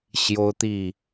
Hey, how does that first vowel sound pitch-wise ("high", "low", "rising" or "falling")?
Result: high